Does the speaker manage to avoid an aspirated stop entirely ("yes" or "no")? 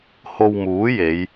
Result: yes